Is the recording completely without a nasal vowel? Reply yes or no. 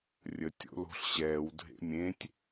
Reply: no